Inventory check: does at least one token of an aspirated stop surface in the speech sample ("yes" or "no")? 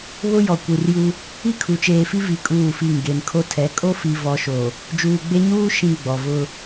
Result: yes